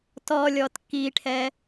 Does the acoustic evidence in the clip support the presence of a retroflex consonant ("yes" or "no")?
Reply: yes